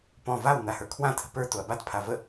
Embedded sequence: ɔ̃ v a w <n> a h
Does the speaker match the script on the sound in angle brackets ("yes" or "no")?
yes